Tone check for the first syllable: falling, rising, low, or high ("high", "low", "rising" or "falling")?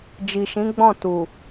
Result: low